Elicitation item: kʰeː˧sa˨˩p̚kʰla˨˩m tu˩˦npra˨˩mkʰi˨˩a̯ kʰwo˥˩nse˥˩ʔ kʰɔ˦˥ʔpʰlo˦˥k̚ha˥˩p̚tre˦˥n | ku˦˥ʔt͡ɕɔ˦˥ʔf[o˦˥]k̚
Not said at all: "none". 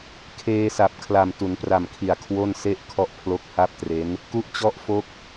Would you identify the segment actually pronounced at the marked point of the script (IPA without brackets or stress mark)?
o˦˥